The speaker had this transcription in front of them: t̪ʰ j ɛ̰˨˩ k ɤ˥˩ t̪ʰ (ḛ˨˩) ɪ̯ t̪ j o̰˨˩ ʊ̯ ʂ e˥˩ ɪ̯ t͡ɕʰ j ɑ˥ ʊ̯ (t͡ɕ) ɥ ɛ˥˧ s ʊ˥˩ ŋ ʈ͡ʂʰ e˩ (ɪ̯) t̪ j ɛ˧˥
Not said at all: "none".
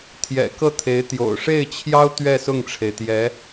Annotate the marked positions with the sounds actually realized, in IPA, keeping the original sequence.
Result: e˧˥, t̪, ɪ̯

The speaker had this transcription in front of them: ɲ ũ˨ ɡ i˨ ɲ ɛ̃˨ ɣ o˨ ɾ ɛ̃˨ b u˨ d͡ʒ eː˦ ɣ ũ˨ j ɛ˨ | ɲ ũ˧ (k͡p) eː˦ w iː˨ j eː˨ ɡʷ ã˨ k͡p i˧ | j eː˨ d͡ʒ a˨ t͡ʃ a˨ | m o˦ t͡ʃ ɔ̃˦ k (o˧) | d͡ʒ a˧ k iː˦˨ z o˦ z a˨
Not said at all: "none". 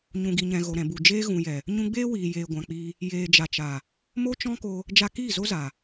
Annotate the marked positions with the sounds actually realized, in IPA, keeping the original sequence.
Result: ɡ͡b, o˧

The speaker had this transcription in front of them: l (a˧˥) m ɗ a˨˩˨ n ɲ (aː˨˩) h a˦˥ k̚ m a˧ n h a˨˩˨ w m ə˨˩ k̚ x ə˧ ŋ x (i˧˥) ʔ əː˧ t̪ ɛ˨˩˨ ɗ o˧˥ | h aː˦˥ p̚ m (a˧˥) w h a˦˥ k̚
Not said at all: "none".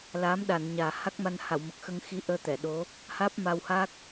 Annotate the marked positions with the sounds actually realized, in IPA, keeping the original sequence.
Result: aː˧˥, aː˨˩, i˧˥, a˧

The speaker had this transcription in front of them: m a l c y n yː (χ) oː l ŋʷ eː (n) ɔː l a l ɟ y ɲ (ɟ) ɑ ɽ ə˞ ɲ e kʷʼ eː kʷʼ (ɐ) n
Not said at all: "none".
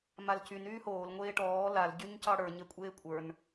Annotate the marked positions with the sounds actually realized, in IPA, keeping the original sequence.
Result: h, ʈ, c, ə˞

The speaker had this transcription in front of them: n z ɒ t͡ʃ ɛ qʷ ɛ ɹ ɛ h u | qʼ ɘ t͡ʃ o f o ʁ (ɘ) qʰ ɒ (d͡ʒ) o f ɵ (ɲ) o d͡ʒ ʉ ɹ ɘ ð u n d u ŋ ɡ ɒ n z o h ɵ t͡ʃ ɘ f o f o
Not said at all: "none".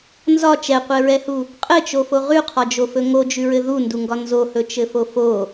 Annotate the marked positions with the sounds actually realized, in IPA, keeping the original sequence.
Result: ʉ, d͡ʒ, ŋ

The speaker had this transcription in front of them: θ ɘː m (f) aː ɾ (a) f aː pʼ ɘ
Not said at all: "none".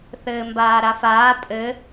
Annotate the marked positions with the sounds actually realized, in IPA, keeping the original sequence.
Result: b, a

